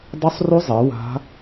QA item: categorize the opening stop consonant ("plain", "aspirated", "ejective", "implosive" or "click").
plain